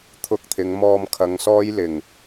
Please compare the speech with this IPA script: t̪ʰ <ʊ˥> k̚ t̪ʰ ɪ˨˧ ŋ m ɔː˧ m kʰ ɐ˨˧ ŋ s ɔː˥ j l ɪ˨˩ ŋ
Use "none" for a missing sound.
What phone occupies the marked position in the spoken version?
ʊ˧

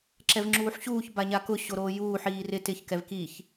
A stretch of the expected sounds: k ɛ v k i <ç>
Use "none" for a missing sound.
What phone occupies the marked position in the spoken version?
ç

